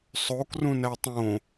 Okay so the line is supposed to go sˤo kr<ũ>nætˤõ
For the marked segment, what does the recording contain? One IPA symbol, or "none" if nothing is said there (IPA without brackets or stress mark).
ũ